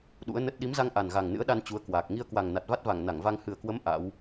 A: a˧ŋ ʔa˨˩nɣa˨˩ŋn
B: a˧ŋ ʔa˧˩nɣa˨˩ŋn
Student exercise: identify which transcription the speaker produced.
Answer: A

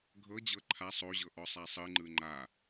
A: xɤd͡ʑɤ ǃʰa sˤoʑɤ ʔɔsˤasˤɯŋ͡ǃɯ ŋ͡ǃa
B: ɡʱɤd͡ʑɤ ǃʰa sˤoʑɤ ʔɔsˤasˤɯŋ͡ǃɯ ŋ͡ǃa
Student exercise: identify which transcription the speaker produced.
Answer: B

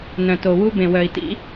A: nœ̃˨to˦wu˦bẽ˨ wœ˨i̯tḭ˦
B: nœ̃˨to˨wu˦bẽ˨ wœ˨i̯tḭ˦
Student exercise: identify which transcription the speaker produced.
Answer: B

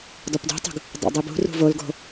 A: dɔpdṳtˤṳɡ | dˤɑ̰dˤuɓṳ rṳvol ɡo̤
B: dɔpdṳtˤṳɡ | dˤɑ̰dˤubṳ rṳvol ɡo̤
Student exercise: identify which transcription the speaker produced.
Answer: B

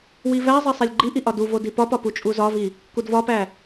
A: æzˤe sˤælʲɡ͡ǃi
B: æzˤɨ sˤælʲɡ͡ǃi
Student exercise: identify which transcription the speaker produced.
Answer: A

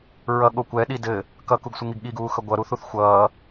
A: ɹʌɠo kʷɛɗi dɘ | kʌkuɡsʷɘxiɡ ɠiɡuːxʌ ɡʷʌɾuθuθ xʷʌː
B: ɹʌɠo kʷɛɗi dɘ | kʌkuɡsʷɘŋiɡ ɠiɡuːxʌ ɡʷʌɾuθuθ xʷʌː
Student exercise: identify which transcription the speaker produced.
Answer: B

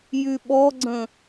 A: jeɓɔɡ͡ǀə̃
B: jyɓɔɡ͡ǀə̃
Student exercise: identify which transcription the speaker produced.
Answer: B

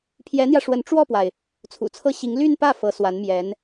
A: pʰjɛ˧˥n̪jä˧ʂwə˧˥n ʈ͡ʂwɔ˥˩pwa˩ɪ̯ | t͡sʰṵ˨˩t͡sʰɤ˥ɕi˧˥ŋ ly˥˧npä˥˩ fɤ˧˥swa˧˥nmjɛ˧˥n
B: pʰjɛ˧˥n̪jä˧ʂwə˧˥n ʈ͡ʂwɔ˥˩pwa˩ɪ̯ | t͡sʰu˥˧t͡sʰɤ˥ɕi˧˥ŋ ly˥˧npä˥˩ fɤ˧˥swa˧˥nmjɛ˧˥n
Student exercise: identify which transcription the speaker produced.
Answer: A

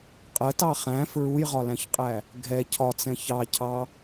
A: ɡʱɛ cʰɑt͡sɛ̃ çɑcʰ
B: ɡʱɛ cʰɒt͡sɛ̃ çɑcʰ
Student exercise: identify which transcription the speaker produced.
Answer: B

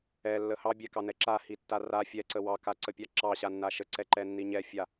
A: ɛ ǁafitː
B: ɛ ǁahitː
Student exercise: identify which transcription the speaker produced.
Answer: B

